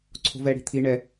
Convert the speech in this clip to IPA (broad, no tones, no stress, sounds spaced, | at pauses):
ǀʰ o̤ v ɛ ɽ i̤ t̪ʰ i ɳ ɛ